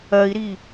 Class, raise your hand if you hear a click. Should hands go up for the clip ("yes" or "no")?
no